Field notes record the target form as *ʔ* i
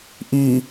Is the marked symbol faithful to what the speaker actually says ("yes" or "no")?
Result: yes